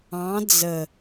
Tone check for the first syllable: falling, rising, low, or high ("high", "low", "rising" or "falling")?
rising